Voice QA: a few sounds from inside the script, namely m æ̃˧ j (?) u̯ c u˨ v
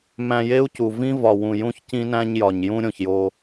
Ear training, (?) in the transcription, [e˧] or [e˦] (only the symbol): e˦